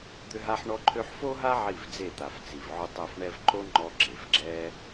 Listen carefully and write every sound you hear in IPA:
d̪ ʏ˦ ɦ a˦ ħ ɳ ɔ˧ ǃʰ ø˧ ħ f o˦ ɦ a˦ ʕ i˦˨ v d͡z e˦˨ t̪ a˨ f t͡s i˨ v ʕ ʊ˦ tˤ ɛ˦˨ f ɳ ɛ˧ v ǃ o˦ ŋ͡ǃ ɔ˧ ɡ͡ǁ e˨ f ɡ͡ǁ ɛ˦

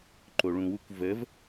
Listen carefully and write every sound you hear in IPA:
ǃ o ɭ ũ w u kʷ v ə v

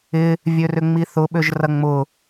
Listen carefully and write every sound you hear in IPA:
ɪ | vʲ ø r ʏ ŋ͡m i θ ʊ ɓ ø ʒ r ɐ ŋ͡m ʊ

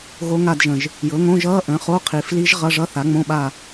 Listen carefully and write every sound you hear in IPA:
ɣ o˧˥ ŋ a˦˨ d ʒ ə̃˨˩ ʒ | j ɤ˩˥ ŋ õ˧˥˧ ʒ ʌː˧˥˧ ʔ ə̃˩˥ χ o˧˥˧ qʰ i˨˩ f l i˧˥ ʒ ʁ ʌ˧˥˧ ʐ ʌ˧˥˧ θ a˩˥ ŋ͡m õ˧˥˧ ɓ a˦˨

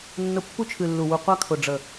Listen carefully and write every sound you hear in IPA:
nː ʊ˧ pː u˦ t͡ʃʰ ɨ˨ lː u˨ w u˨ qʷ a˦ kʰ ʊ˨ ɖ͡ʐ ə˨

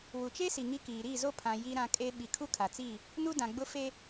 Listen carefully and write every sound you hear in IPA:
w u˨ t͡ʃ e˦ s i˨ ŋ i˦ k iː˨ ɾ i˦˨ z o˦ pʰ ã˨ j i˦ ɾ ã˦ kʼ e˦ ɓ i˨ kʰ u˦ kʰ a˨ t͡s i˦˨ | n u˦ d ã˨ ɡ͡b ʊ˦ f e˦

